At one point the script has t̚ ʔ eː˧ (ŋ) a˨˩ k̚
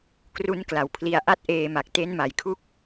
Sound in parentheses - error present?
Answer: yes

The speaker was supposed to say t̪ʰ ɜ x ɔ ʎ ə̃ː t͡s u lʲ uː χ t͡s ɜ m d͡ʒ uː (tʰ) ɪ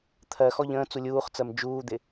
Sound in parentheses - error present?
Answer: yes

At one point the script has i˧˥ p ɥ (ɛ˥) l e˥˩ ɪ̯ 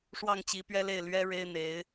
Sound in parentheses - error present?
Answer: no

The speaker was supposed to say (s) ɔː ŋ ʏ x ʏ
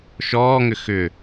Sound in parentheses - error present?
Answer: yes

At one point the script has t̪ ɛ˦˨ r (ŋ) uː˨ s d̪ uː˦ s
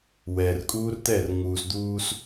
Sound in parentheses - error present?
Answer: no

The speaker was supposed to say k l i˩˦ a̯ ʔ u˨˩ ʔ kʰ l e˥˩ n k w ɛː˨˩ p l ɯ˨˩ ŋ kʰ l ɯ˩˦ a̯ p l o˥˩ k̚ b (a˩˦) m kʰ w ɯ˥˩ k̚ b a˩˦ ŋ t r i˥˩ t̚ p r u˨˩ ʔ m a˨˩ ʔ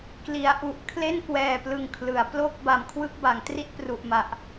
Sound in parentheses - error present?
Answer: no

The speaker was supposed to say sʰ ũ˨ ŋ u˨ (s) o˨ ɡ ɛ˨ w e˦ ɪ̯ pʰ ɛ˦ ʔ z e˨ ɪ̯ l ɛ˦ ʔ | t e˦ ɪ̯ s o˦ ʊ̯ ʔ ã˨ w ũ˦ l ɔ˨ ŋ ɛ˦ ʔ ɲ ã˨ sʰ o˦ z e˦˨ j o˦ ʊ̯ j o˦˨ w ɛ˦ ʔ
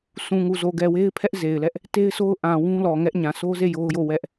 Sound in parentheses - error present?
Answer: yes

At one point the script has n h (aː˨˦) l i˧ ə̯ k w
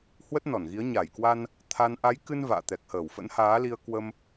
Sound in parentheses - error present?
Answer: no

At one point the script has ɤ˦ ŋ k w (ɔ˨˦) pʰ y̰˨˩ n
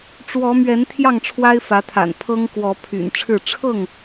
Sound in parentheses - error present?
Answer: no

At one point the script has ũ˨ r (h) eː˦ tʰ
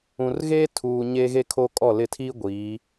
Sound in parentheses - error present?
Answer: yes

